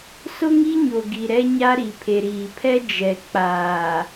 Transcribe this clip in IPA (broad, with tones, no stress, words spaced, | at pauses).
sʊ˦ŋi˦ɲo˨ɡi˨ ɾɛ˦ɲa˦ ɾi˨pʰe˨ɾiː˨pʰɛ˦ d͡ʒɛ˨k͡paː˨